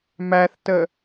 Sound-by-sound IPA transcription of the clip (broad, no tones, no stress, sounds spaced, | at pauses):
m æ θ t ə